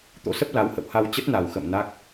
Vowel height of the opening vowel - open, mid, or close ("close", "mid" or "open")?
mid